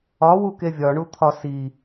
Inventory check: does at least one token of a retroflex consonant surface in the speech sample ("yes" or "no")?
yes